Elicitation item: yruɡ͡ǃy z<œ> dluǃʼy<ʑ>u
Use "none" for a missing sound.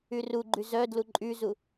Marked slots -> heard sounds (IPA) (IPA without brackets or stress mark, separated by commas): œ, z